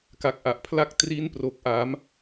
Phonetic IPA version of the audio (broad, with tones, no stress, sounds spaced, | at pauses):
k a˨˩ k̚ ʔ a˨˩ ʔ pʰ l a˦˥ k̚ t r i˦˥ n p r o˨˩ k̚ ʔ a˩˦ m